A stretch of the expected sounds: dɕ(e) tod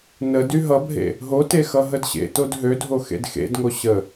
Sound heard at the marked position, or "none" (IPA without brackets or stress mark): ḛ